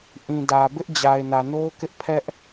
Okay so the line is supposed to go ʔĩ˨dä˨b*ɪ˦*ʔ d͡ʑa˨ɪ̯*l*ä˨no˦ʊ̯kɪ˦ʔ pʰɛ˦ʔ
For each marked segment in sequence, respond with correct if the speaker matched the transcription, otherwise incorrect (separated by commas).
correct, incorrect